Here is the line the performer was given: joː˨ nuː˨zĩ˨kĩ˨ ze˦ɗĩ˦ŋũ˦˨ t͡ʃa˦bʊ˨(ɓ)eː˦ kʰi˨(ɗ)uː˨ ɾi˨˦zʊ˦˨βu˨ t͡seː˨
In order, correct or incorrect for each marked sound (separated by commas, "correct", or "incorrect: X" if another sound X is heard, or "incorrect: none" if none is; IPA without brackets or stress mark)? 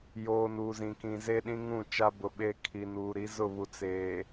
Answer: correct, incorrect: n